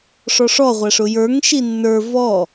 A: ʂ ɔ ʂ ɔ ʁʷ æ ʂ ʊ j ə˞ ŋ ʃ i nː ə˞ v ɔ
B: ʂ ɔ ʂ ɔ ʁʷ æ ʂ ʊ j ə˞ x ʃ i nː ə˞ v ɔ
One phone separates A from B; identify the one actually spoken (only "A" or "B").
A